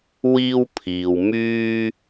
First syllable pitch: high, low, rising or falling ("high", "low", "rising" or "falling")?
high